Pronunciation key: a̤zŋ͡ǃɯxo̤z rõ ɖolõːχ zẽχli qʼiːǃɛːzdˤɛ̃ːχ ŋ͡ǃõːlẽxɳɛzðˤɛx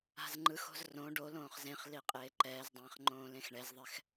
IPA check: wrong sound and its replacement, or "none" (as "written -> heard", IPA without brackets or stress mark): iː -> eː